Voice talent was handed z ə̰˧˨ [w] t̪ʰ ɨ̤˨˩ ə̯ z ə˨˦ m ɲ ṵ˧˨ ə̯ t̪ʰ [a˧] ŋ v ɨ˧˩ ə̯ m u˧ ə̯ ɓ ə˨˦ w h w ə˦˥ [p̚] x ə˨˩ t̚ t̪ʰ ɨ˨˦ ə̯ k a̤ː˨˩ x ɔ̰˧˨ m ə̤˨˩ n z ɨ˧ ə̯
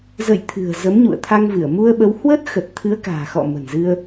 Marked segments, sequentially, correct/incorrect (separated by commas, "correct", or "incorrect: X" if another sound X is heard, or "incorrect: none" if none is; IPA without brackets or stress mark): incorrect: j, correct, incorrect: t̚